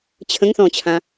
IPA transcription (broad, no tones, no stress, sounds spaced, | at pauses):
t͡ɕʰ ə̃ ŋ θ ɔ̃ t͡ɕʰ ã